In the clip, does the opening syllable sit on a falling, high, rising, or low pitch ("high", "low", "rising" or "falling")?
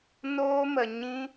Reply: high